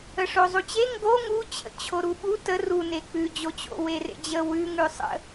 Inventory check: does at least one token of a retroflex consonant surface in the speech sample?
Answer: yes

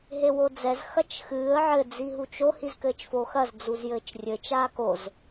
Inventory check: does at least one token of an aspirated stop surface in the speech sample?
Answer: no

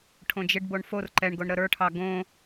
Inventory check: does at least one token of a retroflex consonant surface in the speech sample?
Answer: yes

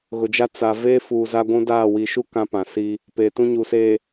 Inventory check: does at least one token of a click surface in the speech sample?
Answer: no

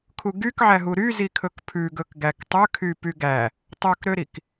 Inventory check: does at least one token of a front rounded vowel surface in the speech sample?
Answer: yes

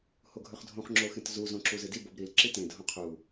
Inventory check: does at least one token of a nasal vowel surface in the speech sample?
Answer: yes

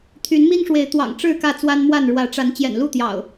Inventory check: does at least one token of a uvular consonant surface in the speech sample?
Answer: no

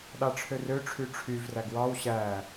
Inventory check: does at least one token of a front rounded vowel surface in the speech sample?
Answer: yes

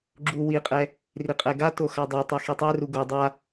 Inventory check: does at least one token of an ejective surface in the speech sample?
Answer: yes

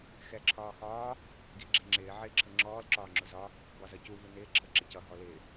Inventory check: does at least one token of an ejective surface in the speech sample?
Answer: no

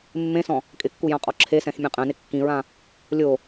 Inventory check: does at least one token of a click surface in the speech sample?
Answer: yes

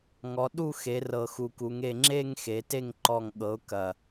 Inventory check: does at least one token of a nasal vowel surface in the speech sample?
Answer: no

